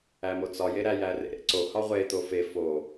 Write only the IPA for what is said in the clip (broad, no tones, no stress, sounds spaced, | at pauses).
æ m o t͡s ɒ j e ɾ æ j æ r ḛ ɾ ḛ ǀ o h ɒ ʁʷ e t̪ o f e f o